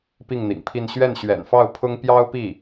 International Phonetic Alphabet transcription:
p i˥˩ ŋ n̪ ḭ˨˩ ŋ pʰ i˥˧ n ɕ ɥ ɛ˥˩ n ɕ ɥ ɛ̰˨˩ n f ɑ˥˩ ʊ̯ pʰ ʊ˥ ŋ p j ɑ˥ ʊ̯ p i˥˩

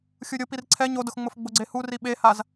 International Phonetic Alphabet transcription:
xʲ u ɾʲ o p i r ǀʰ ɛ ɲ o d ʊ x ŋ͡m ʊ f ɡ͡b ʊ ɡ͡ǀ e h u r i ɓ e h a z

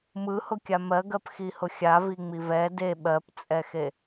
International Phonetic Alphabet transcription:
m ɯ h ʊ kʲ a m ɜ ɡ ɜ p x i h ʊ xʲ a v i ŋ͡m i v ɛ d e ɓ ɜ p t͡sʼ ɛ x e

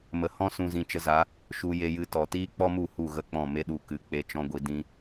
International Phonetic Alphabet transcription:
m ə˨ h ɔ̃˦ s ũ˧ z ĩ˧ t͡ʃ ə˧ z a˨˦ | ʃ u˧ j e˧ j ɨ˧ t ɔ˨ t iː˦ k͡p ɔ˦ m u˦˨ h u˦˨ ɣ ə˦˨ k͡p ɔ̃˦˨ m e˦ ɗ u˧ k ɨ˨˦ k͡p e˧ t͡ʃ ɔ̃˦ ɡʷ i˧ d ĩ˦

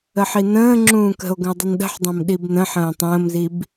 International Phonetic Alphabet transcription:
ə ħ i n ə̃ː ŋ͡ǁ ũː k ə̤ o̯ ɡ ə̃ o̯ dˤ ɪ n ɗ ə̤ ħ dˤ ɑ̃ m ɗ i b n ə̃ ħ ə̃ː tˤ ə̃ː m z i b

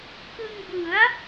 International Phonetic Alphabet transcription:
k ɯ˧ ŋ b ɯ˩˦ a̯

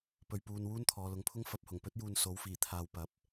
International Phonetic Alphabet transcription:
p ɵ˧ ɥ p uː˧ n w uː˥ n t̪ʰ ɔː˨˧ l ʊ˨˧ ŋ pʰ ʊ˥ ŋ f ɐ˨˥ p̚ h ʊ˨˩ ŋ p ɵ˥ t̚ j uː˧ n s o˨˥ w f iː˨˩ t̪ʰ aː˨ w p ɐ˨˥ p̚

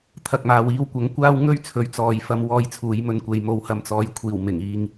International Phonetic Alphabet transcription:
t̪ʰ ɐ˨ k̚ m aː˨ w iː˧ w kʷ ɐ˨˥ ŋ kʷ aː˥ w ŋ ɵ˥ ɥ t͡sʰ ɵ˨˥ ɥ t͡s ɔː˨ j f ɐ˧ m w ɔː˧ j t͡sʰ uː˨˧ j m ɵ˧ n kʷ e˨ j m o˨ w h ɐ˨ m t͡s ɔː˨˧ j kʷʰ iː˨˩ w m ɪ˨˩ ŋ iː˧ ŋ

